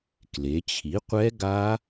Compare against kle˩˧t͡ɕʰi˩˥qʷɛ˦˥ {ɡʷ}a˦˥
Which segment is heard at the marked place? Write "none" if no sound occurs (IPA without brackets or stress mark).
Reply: ɡ